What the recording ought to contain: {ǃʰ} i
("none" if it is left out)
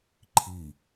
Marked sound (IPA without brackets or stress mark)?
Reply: ǃʰ